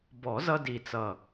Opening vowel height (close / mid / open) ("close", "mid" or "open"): mid